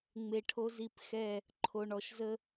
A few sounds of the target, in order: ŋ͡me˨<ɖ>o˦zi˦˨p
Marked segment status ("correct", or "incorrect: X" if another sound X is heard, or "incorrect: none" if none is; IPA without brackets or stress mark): incorrect: ʈʰ